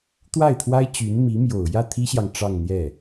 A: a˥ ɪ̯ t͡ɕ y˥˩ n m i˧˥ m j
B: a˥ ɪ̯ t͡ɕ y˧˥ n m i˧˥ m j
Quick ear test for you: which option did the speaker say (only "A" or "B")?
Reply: B